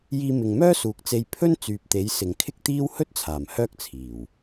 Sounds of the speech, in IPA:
jiː˧mɪ˨ŋmœː˥ suː˨k̚t͡se˧j pʰɵ˥n t͡syː˨p̚t̪e˨˥j sɪ˨ŋkʰɪ˥k̚t̪iː˥w hɵ˥t̚t͡sʰaː˨˩m hœː˥k̚t͡sʰiː˨˩w

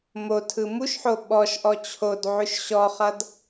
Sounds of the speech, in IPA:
motʰɯ muʃħo ɓɔʃʔɔ t͡ɕʰod ʕʉʃɕɔχʌd

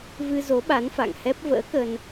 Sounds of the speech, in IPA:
vɨ˧zo˨˦ɓa˨˦n fa̰˧˨ŋhɛ˦˥p̚ və̰ː˧˥kə˧n

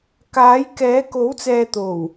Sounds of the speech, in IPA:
kaː˨˥jkɛː˨˥ ko˨˥wt͡sɛː˨t̪o˨˩w

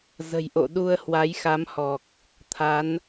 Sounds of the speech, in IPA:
zə̤˨˩jʔo̰˧˨ ɗu˧ə̯hwa˨˦j xa˨˦mhɔ˨˩k̚ | t̪ʰa˨˦n

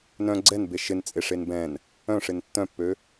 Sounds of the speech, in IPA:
nœ̃ ɡ͡ǀɛnbe ʃɪnt͡sʼeʂen bɛ̃n | œ̃ʂɪn tːœ̃pːø

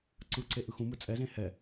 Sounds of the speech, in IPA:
ǀɯǀeʔ ɯxũmɯ t͡sʼɛzẽ hɛ

